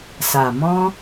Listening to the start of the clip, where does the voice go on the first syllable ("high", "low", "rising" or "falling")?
low